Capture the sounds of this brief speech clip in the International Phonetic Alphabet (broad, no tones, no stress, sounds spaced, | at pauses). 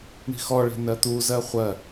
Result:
ɳ i̤ x ɔ ɭ e̤ n ɜ t̪ u z ɜ χʷ ɜ